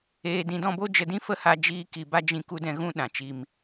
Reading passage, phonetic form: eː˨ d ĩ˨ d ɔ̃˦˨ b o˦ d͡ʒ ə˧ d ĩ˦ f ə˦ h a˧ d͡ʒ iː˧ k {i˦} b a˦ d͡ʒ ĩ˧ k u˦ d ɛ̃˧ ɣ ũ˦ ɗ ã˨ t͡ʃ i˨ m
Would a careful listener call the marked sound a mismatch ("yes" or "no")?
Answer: yes